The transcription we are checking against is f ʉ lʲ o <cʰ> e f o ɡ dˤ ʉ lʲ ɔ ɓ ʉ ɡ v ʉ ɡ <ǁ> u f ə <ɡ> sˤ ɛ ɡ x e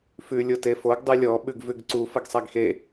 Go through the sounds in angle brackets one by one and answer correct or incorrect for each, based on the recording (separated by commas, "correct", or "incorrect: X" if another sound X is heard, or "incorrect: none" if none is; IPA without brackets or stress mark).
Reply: incorrect: t, incorrect: ǀ, correct